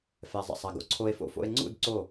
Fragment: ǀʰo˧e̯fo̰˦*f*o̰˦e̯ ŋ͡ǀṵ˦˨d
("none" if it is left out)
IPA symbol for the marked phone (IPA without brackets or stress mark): f